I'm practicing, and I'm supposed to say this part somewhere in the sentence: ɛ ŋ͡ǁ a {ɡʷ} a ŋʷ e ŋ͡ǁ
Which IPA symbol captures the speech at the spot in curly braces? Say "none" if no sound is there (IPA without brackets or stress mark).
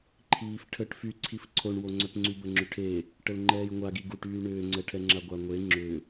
ɡʷ